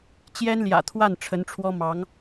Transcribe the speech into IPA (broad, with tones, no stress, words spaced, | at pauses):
t͡ɕjɛ˥nljä̰˨˩t̪ʰwa˥˩n ʈ͡ʂʰə˧˥nʈ͡ʂʰwɔ˥ mɑ˧˥ŋ